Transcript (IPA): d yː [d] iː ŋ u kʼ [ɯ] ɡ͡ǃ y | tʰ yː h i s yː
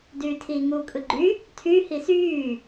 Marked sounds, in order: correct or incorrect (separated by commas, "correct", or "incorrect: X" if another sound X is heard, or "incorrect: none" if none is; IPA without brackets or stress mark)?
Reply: incorrect: tʰ, correct